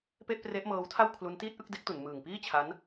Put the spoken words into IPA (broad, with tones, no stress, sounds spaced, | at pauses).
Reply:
p e˥˩ ʔ p r e˦˥ ʔ m ɤː˦˥ w tʰ a˥˩ w kʰ l u˦˥ n t iː˥˩ t̚ ʔ ɯ˥˩ k̚ d e˦˥ k̚ t u˩˦ n m ɯː˨˩ ŋ p iː˥˩ t͡ɕʰ a˦˥ n